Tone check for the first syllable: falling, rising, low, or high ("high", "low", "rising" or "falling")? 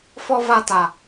high